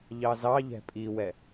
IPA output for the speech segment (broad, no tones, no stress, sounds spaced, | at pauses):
ʎ ɑ z ɑ ʎ ɛ̤ pʼ i w ɛ